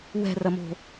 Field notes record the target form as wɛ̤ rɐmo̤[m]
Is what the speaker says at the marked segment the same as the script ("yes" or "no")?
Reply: no